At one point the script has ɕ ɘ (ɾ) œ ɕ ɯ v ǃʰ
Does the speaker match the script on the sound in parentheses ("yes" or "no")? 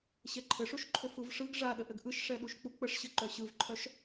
no